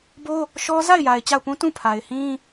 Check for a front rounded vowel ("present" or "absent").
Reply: absent